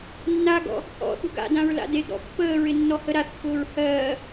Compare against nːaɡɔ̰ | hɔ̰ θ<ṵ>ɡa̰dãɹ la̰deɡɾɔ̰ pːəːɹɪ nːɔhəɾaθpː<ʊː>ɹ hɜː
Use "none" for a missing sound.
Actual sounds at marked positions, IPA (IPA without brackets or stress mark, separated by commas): ṳ, ʊː